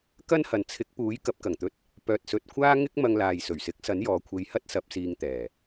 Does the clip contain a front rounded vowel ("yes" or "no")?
yes